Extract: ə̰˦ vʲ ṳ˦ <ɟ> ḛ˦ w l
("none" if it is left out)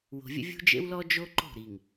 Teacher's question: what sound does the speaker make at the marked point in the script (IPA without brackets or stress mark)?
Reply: d͡ʒ